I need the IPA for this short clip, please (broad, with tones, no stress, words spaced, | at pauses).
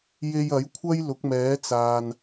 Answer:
je˧j ɐ˨˥jkʷʰɐ˥j lʊ˨˥k̚mɛː˨˥t͡saː˨n